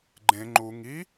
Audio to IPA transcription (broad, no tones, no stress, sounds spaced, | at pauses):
ɡ͡ǃ ẽ ŋ͡ǃ u ŋ i